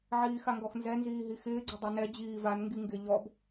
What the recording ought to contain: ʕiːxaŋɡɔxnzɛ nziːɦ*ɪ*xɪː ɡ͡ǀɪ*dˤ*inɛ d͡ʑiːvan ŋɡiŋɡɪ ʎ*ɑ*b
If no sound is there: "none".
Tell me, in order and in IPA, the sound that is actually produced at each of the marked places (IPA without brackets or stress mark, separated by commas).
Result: i, dˤ, ɔ